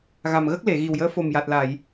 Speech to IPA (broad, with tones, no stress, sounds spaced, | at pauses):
ɣ a˨˩ m ɣ ə˦˥ k̚ l e˨˩˨ ɣ i˨˩ w j əː˧˥ f o˨˩ m j a˨˩ t̚ l a˨˩˨ j